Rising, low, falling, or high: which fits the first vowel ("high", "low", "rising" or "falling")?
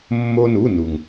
high